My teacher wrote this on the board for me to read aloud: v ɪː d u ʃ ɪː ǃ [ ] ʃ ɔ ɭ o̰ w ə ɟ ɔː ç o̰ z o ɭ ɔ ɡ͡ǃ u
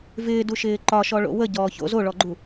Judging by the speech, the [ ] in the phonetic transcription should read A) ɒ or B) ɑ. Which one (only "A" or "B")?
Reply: A